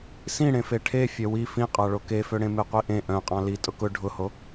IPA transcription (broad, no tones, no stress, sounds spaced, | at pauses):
s ĩ ɽ ẽ f e ʈʰ e fʲ œ w i f ĩ qʼ ɑ ɭ o k e f ø ɽ ẽ m e qʷ i ʔ ẽ ʔ œ̃ qʼ ɑ̃ l i tʼ ʊ k ʊ ɖʱ ʊ h o